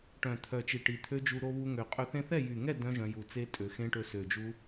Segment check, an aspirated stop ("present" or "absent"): present